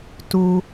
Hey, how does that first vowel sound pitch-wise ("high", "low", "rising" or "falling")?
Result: low